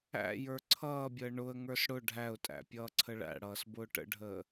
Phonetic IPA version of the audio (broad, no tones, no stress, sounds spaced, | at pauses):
æ̰ j ə˞ ǀʰ ʌː bʲ əː ɳ ʊ ə̯ ŋ ə˞ s ɽ ʊ ɖʱ æ ʊ̯ tʼ æ̰ pʲ ʌː ǀʰ ə ɭ æ̰ ɽ ʌː s b ʊː ʈ ə̰ ɖʱ əː